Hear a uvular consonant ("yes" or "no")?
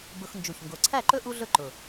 no